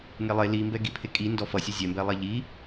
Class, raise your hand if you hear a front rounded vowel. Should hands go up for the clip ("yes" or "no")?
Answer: no